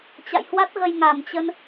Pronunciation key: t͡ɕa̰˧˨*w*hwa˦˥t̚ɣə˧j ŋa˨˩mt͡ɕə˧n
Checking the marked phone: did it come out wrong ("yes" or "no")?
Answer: yes